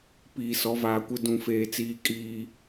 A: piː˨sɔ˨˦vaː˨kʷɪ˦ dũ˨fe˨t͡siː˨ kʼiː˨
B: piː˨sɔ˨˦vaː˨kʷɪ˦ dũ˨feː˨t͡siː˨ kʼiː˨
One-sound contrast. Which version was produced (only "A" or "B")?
B